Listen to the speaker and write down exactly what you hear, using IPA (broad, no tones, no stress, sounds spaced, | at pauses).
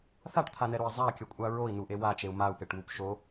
θ a ʈ t̪ʰ a n ɛ ɾ o i̯ zˤ a kʲ ʌ kʷʼ a ɹ o i̯ n u ʔ e w a t͡ʃ e u̯ m a u̯ p e ʈ w u p ʃ o